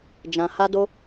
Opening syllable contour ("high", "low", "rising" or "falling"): low